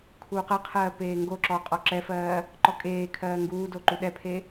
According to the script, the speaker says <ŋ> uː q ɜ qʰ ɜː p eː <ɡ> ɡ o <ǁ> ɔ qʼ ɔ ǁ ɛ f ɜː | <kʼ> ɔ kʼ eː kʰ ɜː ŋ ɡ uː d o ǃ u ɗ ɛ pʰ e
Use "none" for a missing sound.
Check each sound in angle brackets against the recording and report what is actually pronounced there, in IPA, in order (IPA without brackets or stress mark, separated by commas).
kʰ, ŋ, ǁ, ǃ